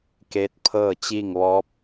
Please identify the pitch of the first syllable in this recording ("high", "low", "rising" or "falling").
rising